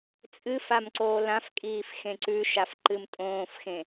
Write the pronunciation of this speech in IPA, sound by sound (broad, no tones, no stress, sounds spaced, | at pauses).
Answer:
t͡sʼ ɨ f a m ǀ oː l ã f kʼ iː f x ẽ ǀ ʉ ʃ a f ǃ ɨ m tʼ õː f x ẽ